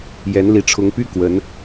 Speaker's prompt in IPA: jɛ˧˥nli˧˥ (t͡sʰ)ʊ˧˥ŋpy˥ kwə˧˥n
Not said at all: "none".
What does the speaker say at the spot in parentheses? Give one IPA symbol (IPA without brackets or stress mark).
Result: ʈ͡ʂʰ